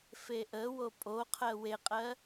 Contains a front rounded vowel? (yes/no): no